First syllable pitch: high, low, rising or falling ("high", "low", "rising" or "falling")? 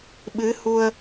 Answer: rising